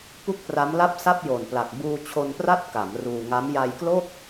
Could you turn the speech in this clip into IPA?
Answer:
p u˥˩ k̚ p r a˦˥ m l a˥˩ p̚ s a˥˩ p̚ j o˨˩ n p l a˨˩ k̚ b uː˧ t͡ɕʰ o˧ n p r a˥˩ t̚ k a˩˦ m r uː˧ ŋ a˦˥ m j a˧ j k l o˥˩ k̚

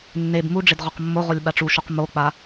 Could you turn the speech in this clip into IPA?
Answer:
nː e b m u ɖ͡ʐ ɪ d ʁ ɔ q mː o ʁ o lʲ ɓ a ʈ͡ʂ u ʃ u q m o k͡p a

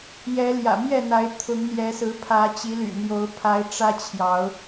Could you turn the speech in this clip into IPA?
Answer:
j ɛ˨˦ l j ä̰˨˩ m j ɛ˥˨ n̪ a˨˦ ɪ̯ t̪ʰ ʊ˨˦ ŋ n̪ j ɛ˨˦ s ɹ̩˨˦ pʰ ä˨˦ t͡ɕ i˨˦ l y̰˨˩ n̪ j o˨˦ ʊ̯ pʰ a˨˦ ɪ̯ ʈ͡ʂ ä˦ t͡ɕʰ j ɑ˨˦ ʊ̯

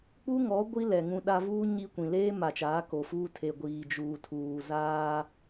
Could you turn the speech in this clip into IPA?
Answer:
k͡p u˦ ŋ ɔ˨˦ ɡʷ i˦ l ɛ˨ ŋ ũ˦ ɗ a˦ v uː˦ ɲ i˦ kʷ ĩ˨ l eː˦ m a˨ t͡ʃ aː˨˦ k o˨ f uː˦ tʰ e˨ ɡʷ iː˨ d͡ʒ uː˨ tʰ uː˨ z aː˦

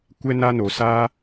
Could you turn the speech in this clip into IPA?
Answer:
kʷ ɛ˦ n a˦ n o˧ s aː˦

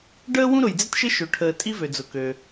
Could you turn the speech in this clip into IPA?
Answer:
ɖ əː˥ w ũ˥ ɾ ʊ˩ j d͡z ɪ˥ t ʃ ɪ˥ ʃ ø˩ ʈʰ əː˩ tʼ i˥ v ø˩ d͡z ʊ˩ k ø˩

